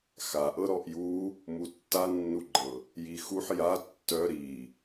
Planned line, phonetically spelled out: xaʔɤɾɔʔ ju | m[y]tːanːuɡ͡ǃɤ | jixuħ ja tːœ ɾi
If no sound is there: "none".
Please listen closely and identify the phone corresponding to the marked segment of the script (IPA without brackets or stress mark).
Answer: u